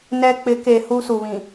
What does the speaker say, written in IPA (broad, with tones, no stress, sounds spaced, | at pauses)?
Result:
n ɛ˦ k͡p ɪ˨˦ k e˨ h u˦ s u˨ β ĩ˨